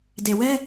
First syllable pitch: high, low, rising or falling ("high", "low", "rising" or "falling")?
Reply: low